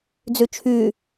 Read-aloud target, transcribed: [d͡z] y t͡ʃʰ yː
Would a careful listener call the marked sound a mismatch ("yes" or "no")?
no